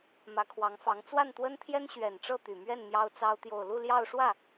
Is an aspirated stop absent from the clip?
no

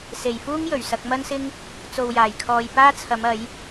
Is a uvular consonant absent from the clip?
yes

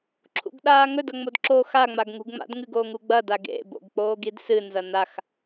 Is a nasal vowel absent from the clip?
yes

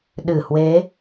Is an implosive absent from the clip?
no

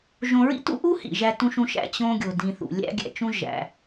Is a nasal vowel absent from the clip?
no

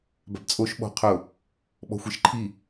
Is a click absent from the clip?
no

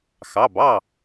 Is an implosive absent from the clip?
yes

